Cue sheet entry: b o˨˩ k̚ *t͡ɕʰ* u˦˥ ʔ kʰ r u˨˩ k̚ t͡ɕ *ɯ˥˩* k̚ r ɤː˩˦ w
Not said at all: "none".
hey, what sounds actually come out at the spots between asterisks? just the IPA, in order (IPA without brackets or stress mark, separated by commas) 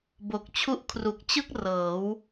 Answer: t͡ɕʰ, ɯ˥˩